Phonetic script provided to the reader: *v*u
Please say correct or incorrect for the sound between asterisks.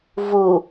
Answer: correct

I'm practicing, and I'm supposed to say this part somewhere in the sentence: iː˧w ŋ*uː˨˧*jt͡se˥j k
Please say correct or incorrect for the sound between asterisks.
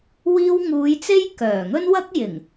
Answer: correct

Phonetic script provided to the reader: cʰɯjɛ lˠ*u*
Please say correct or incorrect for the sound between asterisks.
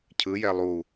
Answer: correct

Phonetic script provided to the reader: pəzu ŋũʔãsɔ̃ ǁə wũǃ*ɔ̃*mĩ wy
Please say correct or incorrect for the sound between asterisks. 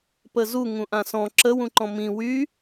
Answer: correct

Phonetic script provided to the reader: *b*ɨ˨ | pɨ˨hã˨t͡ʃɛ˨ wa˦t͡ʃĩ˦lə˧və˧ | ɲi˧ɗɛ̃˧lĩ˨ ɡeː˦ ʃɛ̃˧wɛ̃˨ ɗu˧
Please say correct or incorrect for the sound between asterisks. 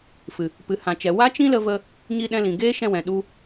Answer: incorrect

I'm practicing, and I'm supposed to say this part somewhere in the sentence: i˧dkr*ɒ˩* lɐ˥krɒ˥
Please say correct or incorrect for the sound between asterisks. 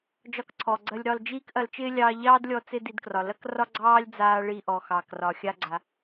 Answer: correct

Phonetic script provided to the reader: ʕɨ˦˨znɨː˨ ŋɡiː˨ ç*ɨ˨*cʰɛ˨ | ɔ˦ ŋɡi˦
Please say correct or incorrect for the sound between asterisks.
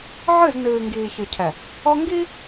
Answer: correct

